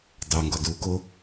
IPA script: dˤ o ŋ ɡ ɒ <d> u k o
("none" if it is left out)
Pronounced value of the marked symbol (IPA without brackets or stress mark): d